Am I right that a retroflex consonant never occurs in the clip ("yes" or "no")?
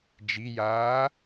yes